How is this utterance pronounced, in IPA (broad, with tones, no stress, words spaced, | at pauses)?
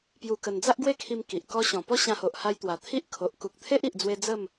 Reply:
pju˧kə˧n d͡za˦ʔɡwe˥˧kʰi˧m ki˨ʔkɔ˦ ɕɔ̃˨˩pɔ˦ ɕã˧ho˨ʔ ha˧jt̪wa˨˩t̪ʰi˦ʔ kʰo˨ʔ ku˨k̚t̪ʰe˦ʔi˨ʔd͡zwe˧ d͡zə˥˧m